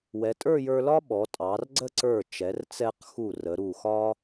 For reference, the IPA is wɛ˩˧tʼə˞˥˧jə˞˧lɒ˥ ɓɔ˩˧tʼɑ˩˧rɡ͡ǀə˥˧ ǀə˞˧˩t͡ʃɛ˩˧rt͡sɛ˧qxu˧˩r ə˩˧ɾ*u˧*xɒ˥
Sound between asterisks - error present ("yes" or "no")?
yes